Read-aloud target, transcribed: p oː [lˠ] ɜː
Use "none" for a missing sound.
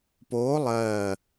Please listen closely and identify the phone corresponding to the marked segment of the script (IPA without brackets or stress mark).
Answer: lˠ